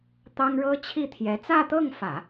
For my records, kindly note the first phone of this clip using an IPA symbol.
t̪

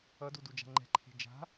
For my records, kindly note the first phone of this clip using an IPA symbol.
ʌ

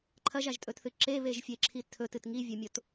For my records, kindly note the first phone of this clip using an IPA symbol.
ǃʰ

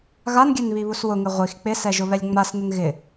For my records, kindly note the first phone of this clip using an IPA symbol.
ɣ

